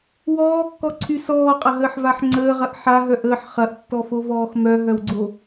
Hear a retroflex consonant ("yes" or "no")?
no